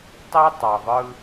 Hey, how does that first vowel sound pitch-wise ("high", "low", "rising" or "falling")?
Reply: high